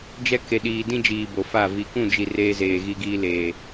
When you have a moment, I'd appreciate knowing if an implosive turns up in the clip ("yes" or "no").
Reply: yes